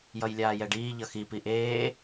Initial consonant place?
palatal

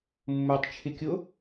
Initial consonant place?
labial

